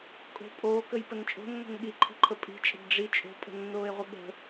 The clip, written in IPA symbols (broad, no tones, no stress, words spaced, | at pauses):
kʼo̤ pʼoːkəjpən t͡ʃʼo̤nːo̤n ɠiǃʰi̤ǃʰə pʼi̤t͡ʃʼə̤b ɖ͡ʐi t͡ʃʼo̤pʼə̤nːoːe̯ʁʷə ɠə̤